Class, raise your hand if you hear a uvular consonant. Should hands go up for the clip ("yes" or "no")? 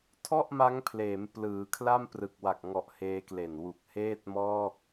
no